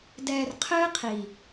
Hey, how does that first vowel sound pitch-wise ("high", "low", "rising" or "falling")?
low